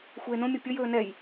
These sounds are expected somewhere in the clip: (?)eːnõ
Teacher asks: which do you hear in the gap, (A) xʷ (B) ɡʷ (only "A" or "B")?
A